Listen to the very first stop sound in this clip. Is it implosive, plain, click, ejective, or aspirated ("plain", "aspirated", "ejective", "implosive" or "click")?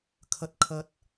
aspirated